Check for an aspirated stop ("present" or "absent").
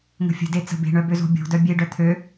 present